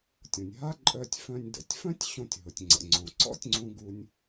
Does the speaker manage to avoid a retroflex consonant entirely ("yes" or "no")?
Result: yes